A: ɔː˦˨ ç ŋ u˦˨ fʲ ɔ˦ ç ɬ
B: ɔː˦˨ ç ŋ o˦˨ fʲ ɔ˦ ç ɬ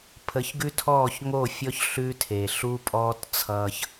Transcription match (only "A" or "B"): B